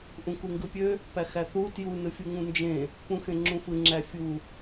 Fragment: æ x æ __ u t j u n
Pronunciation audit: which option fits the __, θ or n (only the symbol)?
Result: θ